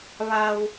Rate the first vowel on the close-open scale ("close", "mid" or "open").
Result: open